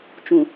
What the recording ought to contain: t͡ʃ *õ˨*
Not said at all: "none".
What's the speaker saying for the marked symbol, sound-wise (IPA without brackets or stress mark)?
ũ˨